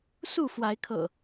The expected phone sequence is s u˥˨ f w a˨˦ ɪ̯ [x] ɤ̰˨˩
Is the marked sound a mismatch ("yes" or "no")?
yes